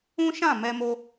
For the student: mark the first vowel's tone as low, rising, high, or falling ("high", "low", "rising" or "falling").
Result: high